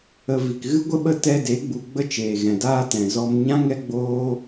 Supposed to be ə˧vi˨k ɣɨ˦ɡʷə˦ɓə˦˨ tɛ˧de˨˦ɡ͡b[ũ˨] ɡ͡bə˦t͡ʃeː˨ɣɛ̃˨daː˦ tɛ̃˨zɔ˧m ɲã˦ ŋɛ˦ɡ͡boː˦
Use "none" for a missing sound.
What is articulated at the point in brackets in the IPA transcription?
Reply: u˨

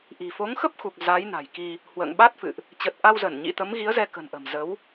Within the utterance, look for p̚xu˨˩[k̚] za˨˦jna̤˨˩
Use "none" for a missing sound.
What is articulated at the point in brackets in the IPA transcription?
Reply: k̚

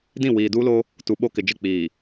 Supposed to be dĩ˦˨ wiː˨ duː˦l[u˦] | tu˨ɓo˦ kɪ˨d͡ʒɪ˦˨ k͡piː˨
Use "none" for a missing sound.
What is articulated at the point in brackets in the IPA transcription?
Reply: o˦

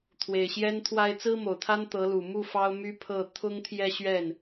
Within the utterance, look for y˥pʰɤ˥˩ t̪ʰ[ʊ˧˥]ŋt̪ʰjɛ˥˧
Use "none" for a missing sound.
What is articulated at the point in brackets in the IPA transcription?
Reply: ʊ˥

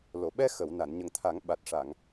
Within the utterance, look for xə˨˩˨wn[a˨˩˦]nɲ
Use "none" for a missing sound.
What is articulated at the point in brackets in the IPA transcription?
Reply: a˨˩˨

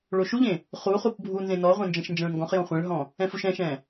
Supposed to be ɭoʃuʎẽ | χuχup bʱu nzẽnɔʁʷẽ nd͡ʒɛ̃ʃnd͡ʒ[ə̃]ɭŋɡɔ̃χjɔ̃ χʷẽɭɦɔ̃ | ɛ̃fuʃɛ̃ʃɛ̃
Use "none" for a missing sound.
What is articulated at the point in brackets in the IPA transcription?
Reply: ɛ̃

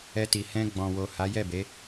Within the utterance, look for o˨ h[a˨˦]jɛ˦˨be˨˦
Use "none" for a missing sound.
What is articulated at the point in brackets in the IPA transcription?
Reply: a˨˦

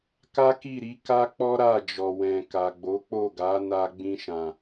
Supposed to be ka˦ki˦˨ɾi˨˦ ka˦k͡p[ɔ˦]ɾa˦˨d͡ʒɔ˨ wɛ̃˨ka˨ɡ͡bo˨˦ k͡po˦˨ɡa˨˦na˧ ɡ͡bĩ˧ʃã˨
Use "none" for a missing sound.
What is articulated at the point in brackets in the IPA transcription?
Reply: ɔ˦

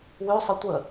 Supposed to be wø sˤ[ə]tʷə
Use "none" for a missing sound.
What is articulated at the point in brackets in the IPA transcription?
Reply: ə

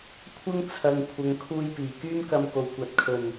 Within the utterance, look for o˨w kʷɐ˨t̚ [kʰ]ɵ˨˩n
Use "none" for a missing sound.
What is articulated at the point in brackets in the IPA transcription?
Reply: kʰ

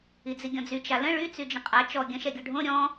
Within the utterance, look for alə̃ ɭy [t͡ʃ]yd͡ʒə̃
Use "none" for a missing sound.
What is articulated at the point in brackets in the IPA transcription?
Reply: t͡s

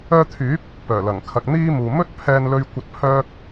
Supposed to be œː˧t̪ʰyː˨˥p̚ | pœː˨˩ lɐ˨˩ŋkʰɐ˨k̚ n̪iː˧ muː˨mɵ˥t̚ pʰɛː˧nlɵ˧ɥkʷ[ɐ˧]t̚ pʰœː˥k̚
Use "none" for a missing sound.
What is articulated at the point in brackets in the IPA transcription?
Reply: ɐ˧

